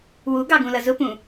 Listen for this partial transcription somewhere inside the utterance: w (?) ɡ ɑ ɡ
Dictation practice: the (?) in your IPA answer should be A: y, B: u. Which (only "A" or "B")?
B